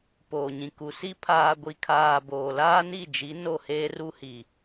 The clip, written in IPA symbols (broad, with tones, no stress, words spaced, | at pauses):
poː˨ɲĩ˨ ku˨si˦ pʰaː˨ɡʷi˨kʰaː˨ boː˨ laː˦ni˦˨d͡ʒi˨˦ no˦˨heː˦ru˦hi˨